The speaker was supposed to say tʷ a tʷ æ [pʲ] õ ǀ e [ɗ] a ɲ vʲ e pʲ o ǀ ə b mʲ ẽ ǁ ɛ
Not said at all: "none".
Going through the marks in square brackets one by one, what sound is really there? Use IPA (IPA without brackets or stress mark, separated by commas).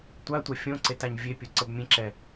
fʲ, t